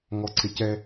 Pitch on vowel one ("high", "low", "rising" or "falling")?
low